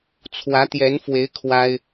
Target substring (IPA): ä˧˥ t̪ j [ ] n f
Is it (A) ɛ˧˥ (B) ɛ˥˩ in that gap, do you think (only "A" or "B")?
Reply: A